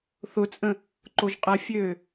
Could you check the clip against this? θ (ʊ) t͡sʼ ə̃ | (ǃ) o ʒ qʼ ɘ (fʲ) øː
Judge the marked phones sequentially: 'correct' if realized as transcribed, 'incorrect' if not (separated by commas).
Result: correct, correct, correct